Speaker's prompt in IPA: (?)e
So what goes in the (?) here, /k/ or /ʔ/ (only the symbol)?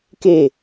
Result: k